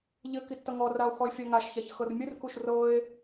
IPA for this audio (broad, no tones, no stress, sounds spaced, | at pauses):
ʎ ɘ k i tː ʌ ŋ ɔ r a o̯ x ɔ e̯ fʲ a ŋ a ʃ ç a ç x ɤ r mʲ ɘ r k u ʃ r ɤ e̯